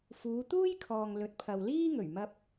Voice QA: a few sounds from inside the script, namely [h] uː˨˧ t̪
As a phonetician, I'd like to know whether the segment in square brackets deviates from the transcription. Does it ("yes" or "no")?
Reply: yes